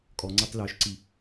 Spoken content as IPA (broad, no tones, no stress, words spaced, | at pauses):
kʼɔŋ͡ǀatˤ lœʃǀi